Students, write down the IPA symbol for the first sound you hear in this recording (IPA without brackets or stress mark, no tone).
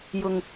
j